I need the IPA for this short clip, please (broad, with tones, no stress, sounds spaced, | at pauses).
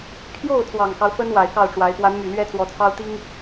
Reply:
pʰ j o˥˩ ʊ̯ t͡s w ɑ˨˩ ŋ x ɑ˦ ʊ̯ f ə˥ n w a˨˩ ɪ̯ k ɑ˥˩ ʊ̯ ʈ͡ʂ w a˧˥ ɪ̯ p w a˧˥ n m y˨˩ l ɥ ɛ˥ t͡s w ɔ˧˥ t͡sʰ ɑ˥ ʊ̯ t̪ i˥ ŋ